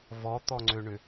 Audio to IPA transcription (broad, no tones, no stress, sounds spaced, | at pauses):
v ɔ t̪ ɔ ŋ͡ǀ ø ɳ ʏ